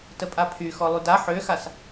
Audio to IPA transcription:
t ə pʼ a pʰ y x ɔ lˠ y d a ħ ø x a s

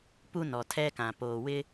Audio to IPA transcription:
p u˦ n ɔ˨ tʰ ɛ˦ k ã˨ p oː˨ w ɪ˦

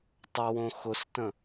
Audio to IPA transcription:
tˤ ə w õ x ʊ s t ə̃

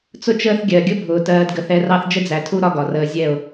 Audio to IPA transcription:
t͡s ʊ˦ t͡ʃ əː˦ θ ɡʲ ɜ˨ ɡʲ ʊ˦ bʱ ʊː˨ t ɜː˧ d ɡ ə˧ θ ɛ˧ r ɑ˦ θ d͡ʒ ə˦ d͡z æ˨ tʰ u˦ ɾ ɒ˦ ɡ ɒ˨ r əː˧ zʲ ɛ˦˨ ʊ̯

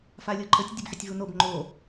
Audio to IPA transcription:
f a lʲ o ǃʰ ə tʲ dʲ ə b ħ ə tʲ v u n o b ŋ͡ǃ o

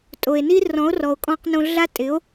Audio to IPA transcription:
tʼ o˧ e̯ n i˥ r ɔ̃˧˥ o̯ r ɔ˧ o̯ kʼ ɔ̃˧ q n õ˧ ɮ a˥ tʼ ɪ˧˥ o̯

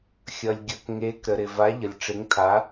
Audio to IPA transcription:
xʲ ʌ˨ lʲ ɡʲ ʌ˨ k ŋ e˨˦ k ɾ ə˨ ɾ ɪ˨ v a˨˦ ʎ ə˨ lʲ ʈ͡ʂ ɪ˨˦ ŋ tʰ a˨˦

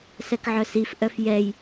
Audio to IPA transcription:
s ɛ k ʕ œ s i f ʔ œ f j ɛ j

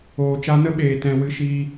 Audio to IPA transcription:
oː˨ t͡ʃ a˧ n ə˦ ɓ eː˨ t ɛ̃˧ w ɨ˦ ʃ iː˦

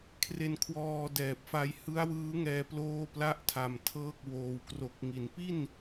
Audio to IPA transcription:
kʰ r e˧ n kʰ w ɔː˧ d ɛː˨˩ p̚ f a˦˥ j h ɯ˦˥ a̯ w ɯː˦˥ ŋ ɛː˧ p l oː˥˩ p l a˥˩ ʔ tʰ a˨˩ m tʰ ɤː˥˩ k̚ w oː˧ w k r o˨˩ k̚ ŋ i˩˦ n p i˥˩ n

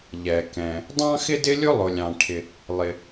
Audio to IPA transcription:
ʎ ɛ˩ k ɛ̃˩ | dˤ ɑ̃˥ x ɪ˥ d ɪ˥ lʲ ʊ˥ lˠ ʊ˩ lʲ ɑ̃˩ ʈʰ ɪ˩ | lˠ ɪ˩

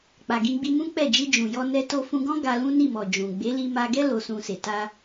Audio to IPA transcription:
k͡p a˨ ɡ ĩ˧ ɡ͡b i˧ m ũ˦ k͡p ɛ˦˨ d͡ʒ i˧ d͡ʒ ũ˨ j ɔ˧ n ɛ˧ t o˧ f ũ˧ ɡ ɔ̃˦ ɡ a˧ l ũ˦ n i˦˨ m ɔ˨ d͡ʒ ũ˨ ɡ͡b e˨˦ l i˧ m a˧ ɡ ɛ˦ l o˧ s ũ˧ s e˨ t a˧

